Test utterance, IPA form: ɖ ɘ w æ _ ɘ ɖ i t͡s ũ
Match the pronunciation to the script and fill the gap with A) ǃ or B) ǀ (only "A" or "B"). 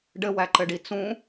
A